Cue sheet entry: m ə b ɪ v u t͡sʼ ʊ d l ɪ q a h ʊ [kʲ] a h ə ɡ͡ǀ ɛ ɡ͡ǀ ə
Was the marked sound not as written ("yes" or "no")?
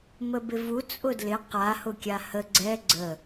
no